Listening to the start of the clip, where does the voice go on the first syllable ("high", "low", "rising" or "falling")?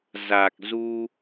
low